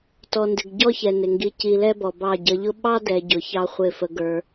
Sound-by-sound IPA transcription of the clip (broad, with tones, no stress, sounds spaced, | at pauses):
t ɔ˨ n d ɪ˨ ɡ ɟ ɔ˦ ç ɛ˨ n ɪ˨ ŋ ɡ i˧ c i˧ l ɛ˦ b ɔ˨ b ɑ˦˨ ɟ ʌ˧ ʎ ʊ˦ ɓ ɑ˦ d ɛ˨ ɟ ʊ˨˦ ç ɑ˦ χʷ ɪ˦˨ f ə˧ ɡ ə˞˧